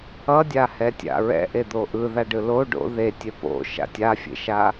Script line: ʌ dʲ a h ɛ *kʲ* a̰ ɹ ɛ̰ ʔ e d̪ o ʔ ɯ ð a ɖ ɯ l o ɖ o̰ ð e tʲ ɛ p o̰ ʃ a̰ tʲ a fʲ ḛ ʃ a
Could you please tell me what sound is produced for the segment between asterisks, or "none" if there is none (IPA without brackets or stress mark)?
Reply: tʲ